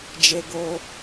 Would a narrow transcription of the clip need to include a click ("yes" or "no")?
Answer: no